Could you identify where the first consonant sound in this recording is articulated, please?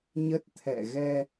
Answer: palatal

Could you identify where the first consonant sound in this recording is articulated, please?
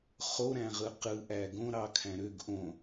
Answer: uvular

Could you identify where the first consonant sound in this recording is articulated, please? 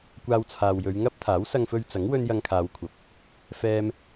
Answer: velar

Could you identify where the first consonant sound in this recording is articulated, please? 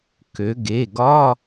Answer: velar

